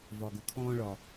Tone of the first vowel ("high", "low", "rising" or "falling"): low